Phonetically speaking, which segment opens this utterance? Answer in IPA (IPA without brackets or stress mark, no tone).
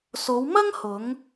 s